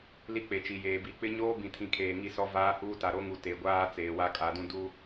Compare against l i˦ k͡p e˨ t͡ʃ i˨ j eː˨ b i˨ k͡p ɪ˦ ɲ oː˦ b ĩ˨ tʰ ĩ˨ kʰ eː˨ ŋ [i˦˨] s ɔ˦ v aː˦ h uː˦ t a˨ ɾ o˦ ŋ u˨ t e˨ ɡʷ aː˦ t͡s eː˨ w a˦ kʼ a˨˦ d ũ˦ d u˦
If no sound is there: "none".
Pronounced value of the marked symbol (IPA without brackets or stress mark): i˦˨